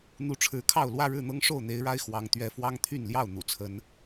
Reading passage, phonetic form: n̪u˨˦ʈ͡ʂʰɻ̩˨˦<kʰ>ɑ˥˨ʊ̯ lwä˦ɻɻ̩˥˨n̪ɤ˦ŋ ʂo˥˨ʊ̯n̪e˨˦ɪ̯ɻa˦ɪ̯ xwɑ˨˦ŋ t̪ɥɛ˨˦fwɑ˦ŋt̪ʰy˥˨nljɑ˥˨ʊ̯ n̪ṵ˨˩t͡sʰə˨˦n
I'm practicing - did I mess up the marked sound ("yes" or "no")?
no